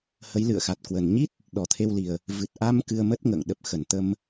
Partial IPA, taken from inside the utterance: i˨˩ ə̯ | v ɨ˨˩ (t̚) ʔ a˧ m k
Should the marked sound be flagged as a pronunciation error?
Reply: no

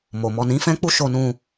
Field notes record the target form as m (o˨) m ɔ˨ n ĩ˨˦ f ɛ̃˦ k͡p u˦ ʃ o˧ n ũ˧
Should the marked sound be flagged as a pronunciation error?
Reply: no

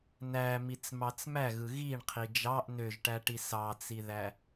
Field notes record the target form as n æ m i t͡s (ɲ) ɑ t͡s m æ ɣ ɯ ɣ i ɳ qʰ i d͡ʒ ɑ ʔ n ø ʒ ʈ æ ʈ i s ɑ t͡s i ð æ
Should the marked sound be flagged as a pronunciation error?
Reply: yes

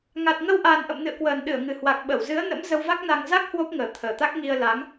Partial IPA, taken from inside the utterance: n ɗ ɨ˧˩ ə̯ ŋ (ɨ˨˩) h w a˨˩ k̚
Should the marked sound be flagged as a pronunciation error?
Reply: no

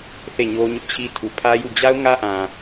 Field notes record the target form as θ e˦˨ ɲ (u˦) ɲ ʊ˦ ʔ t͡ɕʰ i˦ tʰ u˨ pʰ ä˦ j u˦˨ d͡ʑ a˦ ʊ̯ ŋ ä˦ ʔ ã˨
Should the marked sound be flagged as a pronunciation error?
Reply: yes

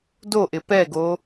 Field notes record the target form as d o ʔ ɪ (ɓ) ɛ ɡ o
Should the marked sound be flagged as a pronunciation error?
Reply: yes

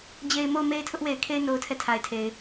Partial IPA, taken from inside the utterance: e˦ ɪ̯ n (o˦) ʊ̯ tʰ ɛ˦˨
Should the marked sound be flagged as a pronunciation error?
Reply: no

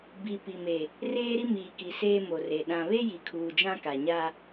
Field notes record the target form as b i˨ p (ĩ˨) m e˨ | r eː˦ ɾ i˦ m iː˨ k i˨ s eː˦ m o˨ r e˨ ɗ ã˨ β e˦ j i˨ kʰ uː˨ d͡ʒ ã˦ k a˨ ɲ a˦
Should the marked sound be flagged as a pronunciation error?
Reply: yes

